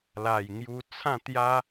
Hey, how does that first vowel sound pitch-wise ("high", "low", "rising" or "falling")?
low